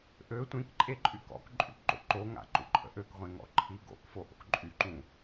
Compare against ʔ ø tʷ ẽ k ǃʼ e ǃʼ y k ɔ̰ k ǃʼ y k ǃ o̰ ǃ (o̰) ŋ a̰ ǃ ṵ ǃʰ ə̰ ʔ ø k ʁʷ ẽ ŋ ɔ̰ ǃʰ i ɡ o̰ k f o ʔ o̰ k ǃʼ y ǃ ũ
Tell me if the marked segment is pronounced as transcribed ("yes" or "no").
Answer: no